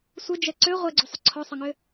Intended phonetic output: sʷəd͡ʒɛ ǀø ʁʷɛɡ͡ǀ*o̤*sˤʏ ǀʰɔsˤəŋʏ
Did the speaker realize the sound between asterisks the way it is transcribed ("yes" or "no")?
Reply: no